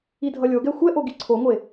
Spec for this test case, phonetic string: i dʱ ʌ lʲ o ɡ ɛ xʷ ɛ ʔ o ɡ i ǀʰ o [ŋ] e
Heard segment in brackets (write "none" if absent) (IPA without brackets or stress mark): ŋʷ